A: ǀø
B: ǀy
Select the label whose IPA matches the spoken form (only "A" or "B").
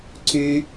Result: B